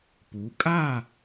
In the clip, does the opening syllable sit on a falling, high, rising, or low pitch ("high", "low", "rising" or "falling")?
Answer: rising